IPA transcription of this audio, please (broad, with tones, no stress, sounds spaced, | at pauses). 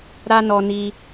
ɾ a˦ n ɔ˧ n i˧